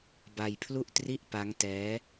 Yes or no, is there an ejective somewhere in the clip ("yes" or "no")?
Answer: no